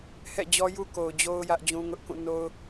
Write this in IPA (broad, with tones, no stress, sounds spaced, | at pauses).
h ɛ̰˦˨ d͡ʑ ɔ˦ j u˦ k o˨ ʊ̯ d͡ʑ o˦ ʊ̯ j ä˦ ʔ d͡ʑ ũ˦ ŋ ʊ˦ ʔ k ũ˦˨ n o˦ ʊ̯